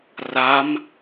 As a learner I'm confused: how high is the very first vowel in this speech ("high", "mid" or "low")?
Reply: low